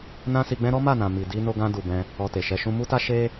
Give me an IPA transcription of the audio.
n ã˦ s i˧ ɡ͡b ɛ̃˦ ɾ ɔ˦ m a˦˨ n ã˨ m i˨ d i˧ n o˧ ɡ ã˧ d u˨ b ɛ̃˧ | ɔ˧ t e˨ ʃ ɛ˧ ʃ ũ˦ m u˦ t a˦ ʃ e˦

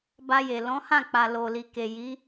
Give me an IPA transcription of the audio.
b a˧ j e˨ l ɔ̃˨˦ h ã˦˨ k͡p a˨ l o˨ l i˨ k e˨ j i˨˦

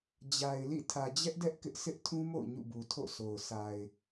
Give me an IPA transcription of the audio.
d͡ʑ a˨ ɪ̯ l ḭ˦˨ tʰ ä˨ d͡ʑ ɛ˦ ʔ d ɛ˦ ʔ k ɪ˦ ʔ s ɪ˦ ʔ tʰ ũ˦ m o̰˦˨ ʊ̯ ɲ ṵ˦˨ b u˨ tʰ o̰˦˨ s o˨ ʊ̯ s a˨ ɪ̯

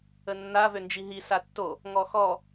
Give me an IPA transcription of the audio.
ə nː a v ø n d͡ʒ i ɦ i s a tː o | ŋ ɔ x ɔ

